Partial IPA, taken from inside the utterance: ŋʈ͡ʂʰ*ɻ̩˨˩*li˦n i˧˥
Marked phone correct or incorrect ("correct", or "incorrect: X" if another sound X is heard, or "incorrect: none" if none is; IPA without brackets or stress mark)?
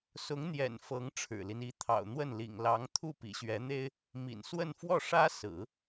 correct